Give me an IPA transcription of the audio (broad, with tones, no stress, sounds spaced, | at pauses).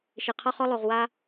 ʃ e˨ qʰ ɔ˧ χ ɔ˧ lˠ o˨ ʁ w a˧